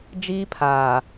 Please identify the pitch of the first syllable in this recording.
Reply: high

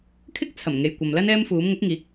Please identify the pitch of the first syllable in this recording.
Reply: high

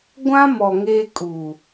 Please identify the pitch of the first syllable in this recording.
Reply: high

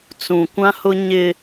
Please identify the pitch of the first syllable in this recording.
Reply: low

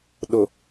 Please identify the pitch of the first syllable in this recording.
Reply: low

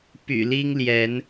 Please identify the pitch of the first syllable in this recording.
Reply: low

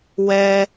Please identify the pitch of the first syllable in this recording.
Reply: high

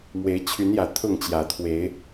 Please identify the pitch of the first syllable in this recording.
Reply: rising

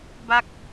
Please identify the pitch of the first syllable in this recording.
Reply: falling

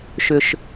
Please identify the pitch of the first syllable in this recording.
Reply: low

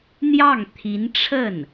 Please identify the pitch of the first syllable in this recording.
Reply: falling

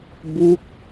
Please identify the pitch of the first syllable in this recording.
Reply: falling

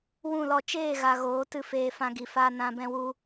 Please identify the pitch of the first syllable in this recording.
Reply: falling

